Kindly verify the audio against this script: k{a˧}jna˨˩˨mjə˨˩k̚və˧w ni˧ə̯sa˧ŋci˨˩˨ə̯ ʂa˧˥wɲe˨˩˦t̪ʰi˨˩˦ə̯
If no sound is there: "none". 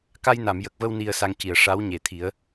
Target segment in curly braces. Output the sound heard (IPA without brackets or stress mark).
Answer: a˧